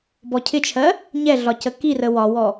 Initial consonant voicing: voiced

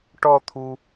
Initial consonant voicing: voiceless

